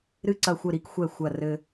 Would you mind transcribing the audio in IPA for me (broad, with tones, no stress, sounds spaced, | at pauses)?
ɾ ɨ˧ ǀ ɐ˧˩ xʷ ɘ˧˩ ɾ i˧ k xʷ ɛ˧˩ xʷ ɐ˧˩ r ɘ˧